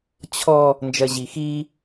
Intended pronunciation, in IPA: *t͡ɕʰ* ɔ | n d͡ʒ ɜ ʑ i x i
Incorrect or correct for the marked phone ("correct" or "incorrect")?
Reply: correct